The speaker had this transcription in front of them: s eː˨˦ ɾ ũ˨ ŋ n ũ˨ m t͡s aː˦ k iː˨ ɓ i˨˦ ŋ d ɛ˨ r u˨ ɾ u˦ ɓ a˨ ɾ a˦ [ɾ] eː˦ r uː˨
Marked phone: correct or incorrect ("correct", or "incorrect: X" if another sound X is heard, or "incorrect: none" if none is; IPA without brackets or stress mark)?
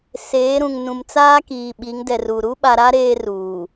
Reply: correct